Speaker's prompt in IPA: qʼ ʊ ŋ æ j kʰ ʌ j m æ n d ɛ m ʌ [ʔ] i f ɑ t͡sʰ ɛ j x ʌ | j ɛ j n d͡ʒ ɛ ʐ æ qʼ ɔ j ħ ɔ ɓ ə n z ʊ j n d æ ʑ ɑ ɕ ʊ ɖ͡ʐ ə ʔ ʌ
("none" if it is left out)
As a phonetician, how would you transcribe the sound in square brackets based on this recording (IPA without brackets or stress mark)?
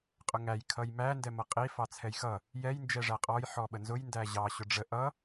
qʼ